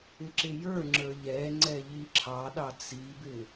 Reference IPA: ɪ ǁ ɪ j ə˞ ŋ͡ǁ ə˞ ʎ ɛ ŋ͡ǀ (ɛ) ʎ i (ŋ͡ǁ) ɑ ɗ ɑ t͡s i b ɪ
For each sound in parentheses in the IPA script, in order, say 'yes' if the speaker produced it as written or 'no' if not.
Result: yes, no

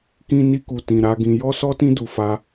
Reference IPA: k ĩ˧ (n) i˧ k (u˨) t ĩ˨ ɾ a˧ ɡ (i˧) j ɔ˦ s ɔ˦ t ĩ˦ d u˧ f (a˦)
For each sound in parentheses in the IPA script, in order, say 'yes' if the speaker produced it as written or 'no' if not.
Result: yes, yes, no, yes

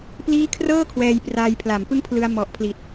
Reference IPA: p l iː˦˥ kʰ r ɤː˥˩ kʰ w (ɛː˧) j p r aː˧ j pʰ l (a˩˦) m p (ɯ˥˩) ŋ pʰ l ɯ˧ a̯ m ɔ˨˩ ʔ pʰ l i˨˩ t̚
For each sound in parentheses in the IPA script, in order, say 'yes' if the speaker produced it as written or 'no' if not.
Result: yes, yes, yes

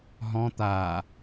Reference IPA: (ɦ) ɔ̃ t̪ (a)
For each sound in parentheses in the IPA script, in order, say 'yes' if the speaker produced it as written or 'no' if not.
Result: yes, no

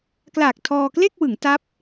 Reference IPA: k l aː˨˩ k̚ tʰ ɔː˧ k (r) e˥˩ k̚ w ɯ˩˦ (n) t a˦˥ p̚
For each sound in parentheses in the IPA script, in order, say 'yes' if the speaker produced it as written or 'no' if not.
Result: no, no

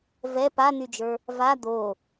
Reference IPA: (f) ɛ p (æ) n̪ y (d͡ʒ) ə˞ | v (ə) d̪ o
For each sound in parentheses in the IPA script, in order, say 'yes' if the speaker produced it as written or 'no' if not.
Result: no, no, yes, no

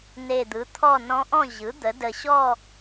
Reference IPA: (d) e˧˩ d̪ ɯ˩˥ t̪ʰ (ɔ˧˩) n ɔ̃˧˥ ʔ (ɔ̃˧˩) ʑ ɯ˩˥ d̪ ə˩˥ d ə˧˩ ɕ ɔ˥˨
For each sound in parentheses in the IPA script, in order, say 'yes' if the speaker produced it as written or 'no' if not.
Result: no, no, no

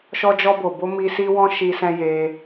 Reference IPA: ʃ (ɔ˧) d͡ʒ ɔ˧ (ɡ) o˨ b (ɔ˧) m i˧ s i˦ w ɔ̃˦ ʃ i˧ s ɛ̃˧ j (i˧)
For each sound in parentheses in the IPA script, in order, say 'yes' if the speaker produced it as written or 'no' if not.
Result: yes, no, no, no

